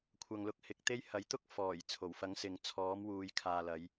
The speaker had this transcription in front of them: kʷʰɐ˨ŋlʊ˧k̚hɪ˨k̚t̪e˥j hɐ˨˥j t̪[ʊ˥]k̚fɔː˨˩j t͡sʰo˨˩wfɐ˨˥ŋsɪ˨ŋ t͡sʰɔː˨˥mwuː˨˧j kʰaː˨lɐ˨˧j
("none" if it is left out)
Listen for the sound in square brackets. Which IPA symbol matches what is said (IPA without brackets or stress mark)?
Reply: ʊ˥